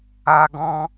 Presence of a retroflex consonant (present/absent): absent